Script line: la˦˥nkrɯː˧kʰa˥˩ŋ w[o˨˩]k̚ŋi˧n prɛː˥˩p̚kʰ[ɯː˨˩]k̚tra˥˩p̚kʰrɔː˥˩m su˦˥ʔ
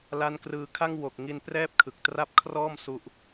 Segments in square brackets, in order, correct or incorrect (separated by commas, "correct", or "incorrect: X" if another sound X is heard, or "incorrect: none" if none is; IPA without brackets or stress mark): correct, incorrect: ɯ˨˩